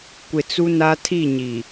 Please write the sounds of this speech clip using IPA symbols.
kʷɪ˨t͡su˦na˦ tʰi˦˨ɲi˨

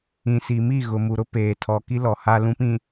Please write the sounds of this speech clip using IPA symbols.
ĩ˨si˨mi˦˨ ɣʊ˨mu˨ɾʊ˦ peː˨tʰɔ˨ ki˦lɔ˨ ha˨lũ˨pĩ˨

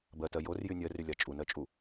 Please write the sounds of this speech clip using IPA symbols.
bɜtɜ jorjy nʲɜrylʲa t͡ʃʼunɜt͡ʃʼu

